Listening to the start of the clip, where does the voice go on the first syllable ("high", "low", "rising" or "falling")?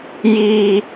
low